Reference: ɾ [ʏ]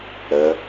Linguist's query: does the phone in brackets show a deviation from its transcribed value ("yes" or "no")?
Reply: yes